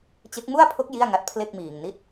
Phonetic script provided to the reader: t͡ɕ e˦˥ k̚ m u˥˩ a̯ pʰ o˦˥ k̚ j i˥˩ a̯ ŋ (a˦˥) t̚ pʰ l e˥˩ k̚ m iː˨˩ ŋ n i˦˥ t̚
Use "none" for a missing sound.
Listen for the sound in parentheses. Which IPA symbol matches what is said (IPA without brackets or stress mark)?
a˦˥